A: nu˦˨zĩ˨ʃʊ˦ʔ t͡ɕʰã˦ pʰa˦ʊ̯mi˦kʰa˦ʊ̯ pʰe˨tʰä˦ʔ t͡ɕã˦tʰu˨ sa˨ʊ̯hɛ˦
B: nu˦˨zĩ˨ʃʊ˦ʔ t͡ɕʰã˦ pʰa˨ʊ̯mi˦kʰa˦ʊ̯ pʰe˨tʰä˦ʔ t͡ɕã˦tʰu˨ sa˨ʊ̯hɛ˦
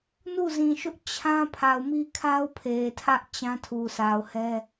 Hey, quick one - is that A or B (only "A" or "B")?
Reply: B